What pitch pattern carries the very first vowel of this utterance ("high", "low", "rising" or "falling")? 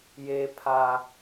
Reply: high